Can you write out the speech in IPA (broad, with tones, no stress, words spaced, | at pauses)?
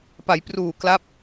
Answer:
pa˩˦jpruː˨˩kla˦˥p̚